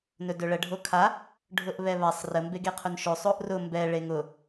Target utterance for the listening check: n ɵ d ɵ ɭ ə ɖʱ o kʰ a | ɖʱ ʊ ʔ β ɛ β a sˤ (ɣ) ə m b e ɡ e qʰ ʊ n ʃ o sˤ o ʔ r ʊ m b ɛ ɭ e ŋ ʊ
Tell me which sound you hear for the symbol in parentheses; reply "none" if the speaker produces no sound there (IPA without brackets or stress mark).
r